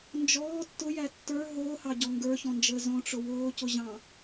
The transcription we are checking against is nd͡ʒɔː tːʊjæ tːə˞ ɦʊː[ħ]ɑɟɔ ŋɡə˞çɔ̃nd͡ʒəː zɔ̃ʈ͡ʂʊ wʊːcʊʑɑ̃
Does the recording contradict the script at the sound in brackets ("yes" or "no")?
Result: yes